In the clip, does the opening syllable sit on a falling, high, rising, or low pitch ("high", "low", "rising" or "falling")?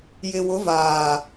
low